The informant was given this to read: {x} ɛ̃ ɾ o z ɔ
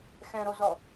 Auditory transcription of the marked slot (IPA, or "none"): x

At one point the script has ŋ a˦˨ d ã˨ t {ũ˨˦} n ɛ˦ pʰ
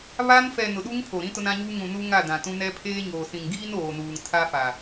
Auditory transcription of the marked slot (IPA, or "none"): ũ˦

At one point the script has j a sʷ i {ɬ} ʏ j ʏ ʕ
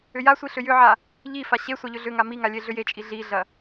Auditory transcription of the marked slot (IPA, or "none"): ɬ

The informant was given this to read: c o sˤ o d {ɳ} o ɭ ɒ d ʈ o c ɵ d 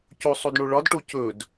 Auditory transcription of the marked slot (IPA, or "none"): ɳ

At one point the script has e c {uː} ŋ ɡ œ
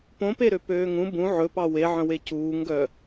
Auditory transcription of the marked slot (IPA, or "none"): uː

